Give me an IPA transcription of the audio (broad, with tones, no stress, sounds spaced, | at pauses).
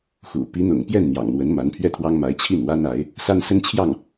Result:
x ṵ˨˩ p i˧˥ n̪ ʊ̰˨˩ ŋ p j ɛ˥˩ n n̪ j ɑ̰˨˩ ŋ n̪ w ə˧˥ n m a˧˥ n pʰ ɥ ɛ˥˩ t̪ʰ w ɑ˥ ŋ m a˧˥ ɪ̯ t͡ɕʰ i˥˩ n w a˥ n a˧˥ ɪ̯ | s a˥ n s ə˥ n t͡ɕʰ j ɑ˥˩ ŋ